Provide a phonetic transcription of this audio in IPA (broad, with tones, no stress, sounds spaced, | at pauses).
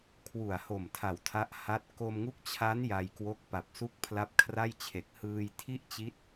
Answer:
kʰ w u˨˩ a̯ h o˨˩ m tʰ a˨˩ w tʰ a˦˥ ʔ h a˦˥ t̚ k o˧ m ŋ u˦˥ k̚ t͡ɕʰ a˦˥ n j a˧ j k w o˦˥ k̚ p a˨˩ p̚ s u˥˩ k̚ pʰ l a˦˥ p̚ kʰ r a˥˩ j t͡ɕʰ e˨˩ k̚ h ɯː˧ j tʰ i˥˩ ʔ t͡ɕ i˦˥ t̚